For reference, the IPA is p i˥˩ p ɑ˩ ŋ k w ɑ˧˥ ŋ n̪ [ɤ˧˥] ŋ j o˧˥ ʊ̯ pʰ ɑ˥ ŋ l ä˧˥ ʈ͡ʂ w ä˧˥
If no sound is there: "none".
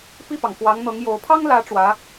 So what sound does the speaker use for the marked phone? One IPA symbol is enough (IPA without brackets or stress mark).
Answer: ɤ˧˥